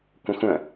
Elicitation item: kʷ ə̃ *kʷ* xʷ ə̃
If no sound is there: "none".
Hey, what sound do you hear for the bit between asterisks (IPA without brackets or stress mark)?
none